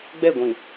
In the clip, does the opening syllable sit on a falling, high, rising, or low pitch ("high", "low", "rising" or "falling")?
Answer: falling